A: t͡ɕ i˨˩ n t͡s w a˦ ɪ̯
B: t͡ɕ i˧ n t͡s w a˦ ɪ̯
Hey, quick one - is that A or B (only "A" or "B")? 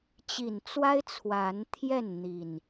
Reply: A